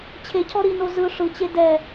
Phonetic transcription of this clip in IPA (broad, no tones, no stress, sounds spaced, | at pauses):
t͡ɕʰ e cʰ ɔ ɾ i n o z ɯ ʂ ɯ t͡ɕ e d ɛ